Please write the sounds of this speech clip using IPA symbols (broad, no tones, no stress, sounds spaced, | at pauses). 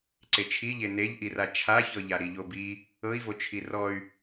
ǀ e t͡ʃʰ i ʎ e n e ʎ ʔ i r a t͡ʃʰ a ç ɤ ʎ a ɾ i ʎ o b i | ɤ i̯ v o t͡ʃʰ i r ɔ y̯